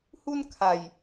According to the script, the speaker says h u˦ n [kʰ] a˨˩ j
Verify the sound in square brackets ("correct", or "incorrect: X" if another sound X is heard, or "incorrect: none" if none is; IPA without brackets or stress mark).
correct